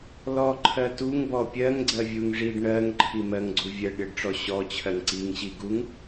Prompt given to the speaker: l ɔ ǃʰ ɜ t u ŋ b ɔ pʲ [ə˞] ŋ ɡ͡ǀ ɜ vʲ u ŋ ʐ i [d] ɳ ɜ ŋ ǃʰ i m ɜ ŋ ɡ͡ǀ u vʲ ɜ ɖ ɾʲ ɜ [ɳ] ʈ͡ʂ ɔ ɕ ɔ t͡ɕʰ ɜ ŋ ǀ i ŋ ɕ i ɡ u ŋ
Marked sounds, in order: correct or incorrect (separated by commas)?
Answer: incorrect, incorrect, incorrect